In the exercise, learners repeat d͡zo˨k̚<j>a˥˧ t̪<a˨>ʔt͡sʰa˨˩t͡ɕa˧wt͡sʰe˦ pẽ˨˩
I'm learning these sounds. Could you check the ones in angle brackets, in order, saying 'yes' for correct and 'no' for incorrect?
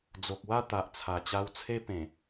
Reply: no, yes

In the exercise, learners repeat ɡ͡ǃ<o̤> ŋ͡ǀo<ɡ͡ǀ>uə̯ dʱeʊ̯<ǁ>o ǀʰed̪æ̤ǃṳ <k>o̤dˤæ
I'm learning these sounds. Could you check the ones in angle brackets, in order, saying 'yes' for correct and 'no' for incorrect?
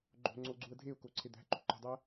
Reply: yes, yes, no, no

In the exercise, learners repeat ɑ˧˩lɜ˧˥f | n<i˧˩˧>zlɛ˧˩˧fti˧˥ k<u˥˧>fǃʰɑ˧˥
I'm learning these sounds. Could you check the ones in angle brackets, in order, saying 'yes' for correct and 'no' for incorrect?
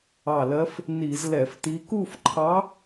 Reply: yes, yes

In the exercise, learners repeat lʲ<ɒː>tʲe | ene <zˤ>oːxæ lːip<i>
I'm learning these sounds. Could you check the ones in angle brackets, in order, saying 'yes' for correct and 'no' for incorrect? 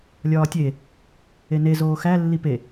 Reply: yes, no, no

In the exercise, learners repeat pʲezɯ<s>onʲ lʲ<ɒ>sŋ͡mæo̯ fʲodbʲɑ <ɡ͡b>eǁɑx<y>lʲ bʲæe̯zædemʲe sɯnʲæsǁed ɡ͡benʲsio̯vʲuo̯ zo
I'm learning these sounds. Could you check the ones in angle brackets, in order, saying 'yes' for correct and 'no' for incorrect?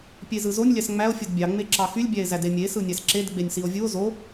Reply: no, no, no, yes

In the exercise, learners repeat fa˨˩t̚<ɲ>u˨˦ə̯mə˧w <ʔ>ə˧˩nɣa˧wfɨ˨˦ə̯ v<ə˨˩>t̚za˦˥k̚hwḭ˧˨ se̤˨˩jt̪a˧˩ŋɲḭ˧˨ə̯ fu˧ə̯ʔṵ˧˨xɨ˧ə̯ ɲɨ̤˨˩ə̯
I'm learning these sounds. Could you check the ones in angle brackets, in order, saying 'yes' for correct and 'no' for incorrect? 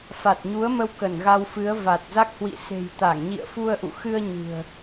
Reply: yes, no, no

